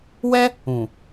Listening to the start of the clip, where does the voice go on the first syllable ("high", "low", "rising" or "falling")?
high